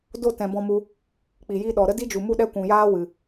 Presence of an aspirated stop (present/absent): absent